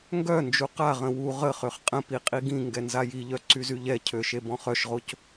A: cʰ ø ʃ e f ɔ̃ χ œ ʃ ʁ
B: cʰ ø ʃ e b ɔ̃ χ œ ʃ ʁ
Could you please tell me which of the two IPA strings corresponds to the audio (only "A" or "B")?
B